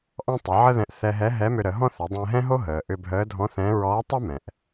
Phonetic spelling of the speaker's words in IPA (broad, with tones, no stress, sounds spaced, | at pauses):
ʔ ɔ̃˥ tˤ ə˩˧ ʕ ə˥ ð ɛ̃˧ ʔ θ ɛ˧ ɦ ɛ˧˥ ɦ ɛ˧˥ m ʏ˧ ɾ ə˩˧ ɦ ɔ̃˥ θ ʏ˩˧ dˤ ɛ̃˧ ɦ ɛ̃˥ ɦ o˥ ɦ əː˩ ʔ ʏ˧ bʱ əː˧˥ dʱ ɔ̃˧˥ θ ɛ̃˧˥ ɹ ɔː˧˥ tˤ ɛ˥ m ɛ̃˩ ʔ